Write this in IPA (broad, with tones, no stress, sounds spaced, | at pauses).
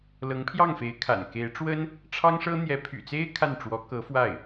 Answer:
l ɤ˧˥ ŋ pʰ j ɑ˥˩ ŋ f e˧˥ ɪ̯ kʰ a̰˨˩ n k e˧˥ ɪ̯ ʈ͡ʂ w ə˥ n | ʈ͡ʂʰ ɑ˥ ŋ ʂ ɤ˥ n̪ j ɛ˧˥ pʰ y̰˨˩ t͡s e˥ ɪ̯ kʰ a˥˩ n ʈ͡ʂ w ɔ˧˥ k ɤ˧˥ f w a˥˩ ɪ̯